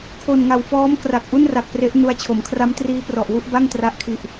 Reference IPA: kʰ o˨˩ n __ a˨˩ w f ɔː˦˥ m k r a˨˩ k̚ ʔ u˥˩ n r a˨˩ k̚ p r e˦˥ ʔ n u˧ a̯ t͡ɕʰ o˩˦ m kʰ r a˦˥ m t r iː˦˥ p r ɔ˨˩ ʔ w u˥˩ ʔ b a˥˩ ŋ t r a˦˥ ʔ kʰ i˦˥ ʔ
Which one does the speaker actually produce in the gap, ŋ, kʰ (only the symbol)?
ŋ